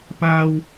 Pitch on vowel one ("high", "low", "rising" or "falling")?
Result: high